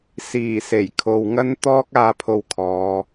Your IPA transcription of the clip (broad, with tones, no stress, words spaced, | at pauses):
siː˨˩se˨˩j kʰo˨wŋɐ˥n t̪ɔː˥k̚aː˧pʰo˧w kʰɔː˨˧